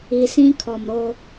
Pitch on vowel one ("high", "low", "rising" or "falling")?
low